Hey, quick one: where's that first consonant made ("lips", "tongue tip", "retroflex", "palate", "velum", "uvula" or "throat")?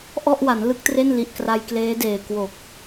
throat